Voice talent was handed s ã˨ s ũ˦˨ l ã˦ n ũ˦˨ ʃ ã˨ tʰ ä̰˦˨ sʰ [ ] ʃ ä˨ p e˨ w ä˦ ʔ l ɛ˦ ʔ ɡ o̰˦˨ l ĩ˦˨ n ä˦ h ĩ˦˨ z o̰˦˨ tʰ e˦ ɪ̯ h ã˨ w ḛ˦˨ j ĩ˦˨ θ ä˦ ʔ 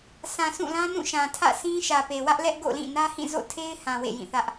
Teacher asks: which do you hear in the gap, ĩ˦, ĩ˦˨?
ĩ˦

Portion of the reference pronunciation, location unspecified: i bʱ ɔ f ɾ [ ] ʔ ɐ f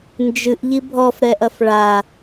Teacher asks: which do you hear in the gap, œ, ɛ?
ɛ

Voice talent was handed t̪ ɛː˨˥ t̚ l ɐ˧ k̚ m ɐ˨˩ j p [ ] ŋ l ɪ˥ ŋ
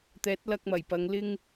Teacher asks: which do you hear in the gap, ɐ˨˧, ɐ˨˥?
ɐ˨˧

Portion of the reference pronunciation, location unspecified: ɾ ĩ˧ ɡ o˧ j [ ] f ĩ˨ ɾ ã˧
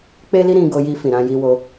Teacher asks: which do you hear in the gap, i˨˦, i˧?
i˧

